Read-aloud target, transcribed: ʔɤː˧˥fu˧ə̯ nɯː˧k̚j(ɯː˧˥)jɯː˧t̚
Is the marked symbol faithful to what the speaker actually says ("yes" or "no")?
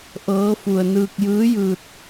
yes